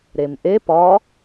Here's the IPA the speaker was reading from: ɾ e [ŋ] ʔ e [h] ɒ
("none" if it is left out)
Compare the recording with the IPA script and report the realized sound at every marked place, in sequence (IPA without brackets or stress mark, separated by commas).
m, p